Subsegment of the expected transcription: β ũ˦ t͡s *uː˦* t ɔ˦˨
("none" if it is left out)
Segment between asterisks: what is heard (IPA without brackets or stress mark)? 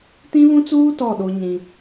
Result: uː˦